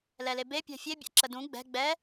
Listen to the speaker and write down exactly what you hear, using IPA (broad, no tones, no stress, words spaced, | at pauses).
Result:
lɛlebe pʲɛ̤fʲe bʲa̰ǁədũ ɡ͡bɛ̤ ɡ͡bɛ